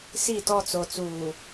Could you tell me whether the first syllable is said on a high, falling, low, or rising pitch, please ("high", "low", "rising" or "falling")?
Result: falling